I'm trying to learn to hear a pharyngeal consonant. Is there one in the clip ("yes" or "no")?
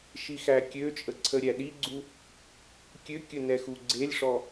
no